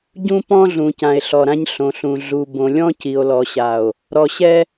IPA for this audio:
ɟũ˦pɔ̃˦ɮũ˨ cã˨e̯ɬɔ˨ɾã˦ɲ ɬõ˨ɬũ˨ ɮu˨ bõ˨lʲɔ̃˦ ci˨o̯lɔ˨ɕa˨o̯ | ɾɔ˨ɕɛ˦

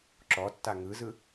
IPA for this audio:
ǁɔtːa ŋɯzɯ

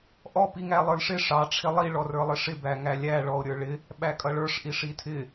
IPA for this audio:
ʔɔ piŋælˠə˞lʂɪ ʂɑ ʈ͡ʂʰɪlˠi ɭɔrə˞lˠɪʂɪ bæŋælʲæ ɭɔo̯ɾʲə˞ɭɪ | ɓækʼʌɭə˞ʂ ʔiʂitʰɪ

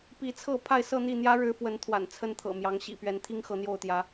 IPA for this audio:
pi˨˦t͡sʰɤ˥˨ pʰa˥˨ɪ̯sɤ˥˨n̪i˥˨ n̪jä˦ɻɻ̩˨˦ fwə˨˦n t̪ʰwa̰˨˩nt͡sʰə˦n t̪ʰɤ̰˨˩mjɑ˨˦ŋ ɕḭ˨˩pɥɛ˨˦nt̪ʰi˦ŋ xɤ˨˦n̪jo˥˨ʊ̯t̪jä˨˦

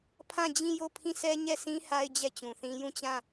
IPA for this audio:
pʰã˦˨d͡ʑĩ˦˨jo˦˨ pʰĩ˦˨sʰɛ˦ ɲɛ˦˨sʰĩ˦ ha˦ɪ̯d͡ʑɛ˦˨t͡ɕũ˨θĩ˦ jũ˦˨t͡ɕã˦˨

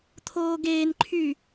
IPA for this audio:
t̪ʰoːɡeːnǃʰyː

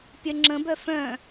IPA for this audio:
pʲœŋ͡ǁə̃bœ fœ̃

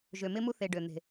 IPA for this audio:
ʒø˨mɪ˦mu˦ θe˧ɖø˨ n̪e̤˨

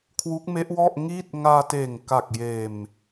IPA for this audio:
kʰwu˦˥k̚me˦˥ʔwɔ˥˩ʔ ŋiː˥˩t̚ ŋaː˧teː˨˩ŋ ka˨˩k̚jeː˨˩m

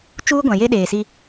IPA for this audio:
t͡ʃuː˦ɡʷã˨ je˦ɗeː˨si˦

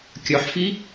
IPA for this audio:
kʲœħfi

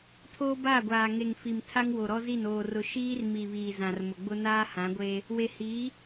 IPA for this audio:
tʰoː˦baː˦˨ɡʷaː˨ ŋe˨ŋfi˨m tʰa˦ŋwo˨ɾɔ˦zi˦˨n oː˨r ʊ˨ ʃiː˦rmi˨βiː˨ zã˨rmʊ˨ɡ͡bʊ˦ naː˦hã˨˦ɡʷeː˦ | we˨ hiː˨˦

